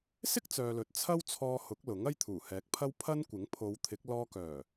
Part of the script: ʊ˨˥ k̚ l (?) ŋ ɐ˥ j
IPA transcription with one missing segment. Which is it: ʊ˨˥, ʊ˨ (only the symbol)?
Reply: ʊ˨˥